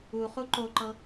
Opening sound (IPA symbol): u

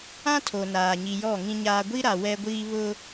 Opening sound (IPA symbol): ã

